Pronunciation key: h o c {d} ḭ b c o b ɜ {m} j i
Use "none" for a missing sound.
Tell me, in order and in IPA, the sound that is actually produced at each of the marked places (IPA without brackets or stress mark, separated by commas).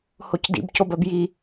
d, b